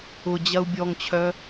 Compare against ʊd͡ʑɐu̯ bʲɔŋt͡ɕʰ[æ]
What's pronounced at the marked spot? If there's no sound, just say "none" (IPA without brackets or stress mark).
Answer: œ